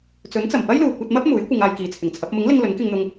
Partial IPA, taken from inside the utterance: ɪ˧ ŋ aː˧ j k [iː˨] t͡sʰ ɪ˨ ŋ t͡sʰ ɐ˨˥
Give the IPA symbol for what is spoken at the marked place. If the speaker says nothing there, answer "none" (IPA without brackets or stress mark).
iː˨